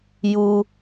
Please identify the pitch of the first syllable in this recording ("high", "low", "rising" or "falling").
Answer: high